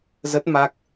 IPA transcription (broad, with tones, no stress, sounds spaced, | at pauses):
z ə˦˥ t̚ m a˦˥ k̚